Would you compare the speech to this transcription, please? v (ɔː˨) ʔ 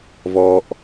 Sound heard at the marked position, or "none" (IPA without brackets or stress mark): ɔː˨